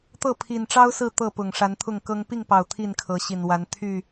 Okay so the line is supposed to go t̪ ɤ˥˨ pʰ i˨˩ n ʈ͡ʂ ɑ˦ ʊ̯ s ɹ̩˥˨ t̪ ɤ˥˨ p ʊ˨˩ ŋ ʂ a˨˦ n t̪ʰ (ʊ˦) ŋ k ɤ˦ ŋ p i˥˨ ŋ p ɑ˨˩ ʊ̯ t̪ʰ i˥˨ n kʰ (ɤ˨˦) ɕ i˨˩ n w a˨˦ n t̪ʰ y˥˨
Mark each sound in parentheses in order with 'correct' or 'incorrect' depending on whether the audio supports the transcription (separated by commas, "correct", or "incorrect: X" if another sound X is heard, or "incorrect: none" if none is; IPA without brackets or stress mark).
incorrect: ʊ˥˨, correct